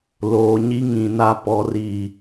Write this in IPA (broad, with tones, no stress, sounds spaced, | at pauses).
l oː˨ ɲ i˦ ŋ ĩ˨ n a˦ p ɔ˨ r i˨